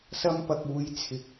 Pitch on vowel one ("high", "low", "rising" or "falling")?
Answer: high